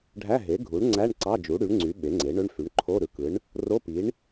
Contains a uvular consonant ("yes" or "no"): no